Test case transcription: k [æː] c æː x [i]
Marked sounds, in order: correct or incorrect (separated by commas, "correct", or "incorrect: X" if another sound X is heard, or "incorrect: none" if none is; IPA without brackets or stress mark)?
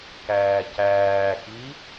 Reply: correct, correct